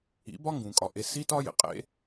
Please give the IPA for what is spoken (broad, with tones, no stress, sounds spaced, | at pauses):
ḭ˨˦ b ɒ˦ ŋ ɡ ũ˨ kʼ ɒ˨ ʔ e˧ s i˦ t ɒ˦ j ḛ˨ qʼ ḛ˦